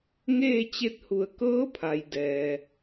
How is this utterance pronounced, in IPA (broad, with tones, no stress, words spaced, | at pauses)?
ŋeː˥˨t͡ɕe˧t̚hu˧˩ə̯ kɤː˧˥pʰa˩j dɛː˩